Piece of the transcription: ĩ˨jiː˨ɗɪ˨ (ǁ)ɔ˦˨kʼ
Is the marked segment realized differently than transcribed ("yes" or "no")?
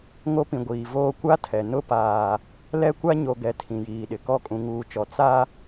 yes